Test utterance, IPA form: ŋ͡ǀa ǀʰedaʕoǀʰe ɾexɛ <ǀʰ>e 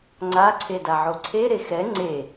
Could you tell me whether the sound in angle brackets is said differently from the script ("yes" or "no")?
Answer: yes